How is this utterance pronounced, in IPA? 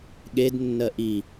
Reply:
ɠ e d nː ɜ ʔ i

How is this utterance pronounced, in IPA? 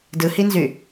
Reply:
d ɯ h i n z y

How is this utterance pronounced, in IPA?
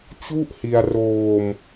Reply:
t͡ɕ u˥˩ ʔ h i˧ a̯ r oː˧ m

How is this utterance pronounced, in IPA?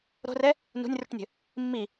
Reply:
ɾ o̤ r ɛ | n ṳ nʲ r ṳ ʈ nʲ ə̤ | mː i

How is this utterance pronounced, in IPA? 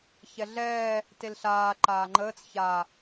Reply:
ç ɛ ɮ ɛː | t e l ɬ aː ǃ aː ŋ͡ǃ əː t͡s ç a

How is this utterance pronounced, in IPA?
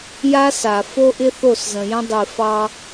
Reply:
j a˦ s a˨ f o˦ ʔ ɪ˦ θ o˦˨ s z ə̃˨ j ə̃˦ dˤ i˨ f ɑ˦

